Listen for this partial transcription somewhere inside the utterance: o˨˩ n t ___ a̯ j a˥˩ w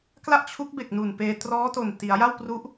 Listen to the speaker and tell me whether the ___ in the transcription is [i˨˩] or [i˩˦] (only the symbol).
i˩˦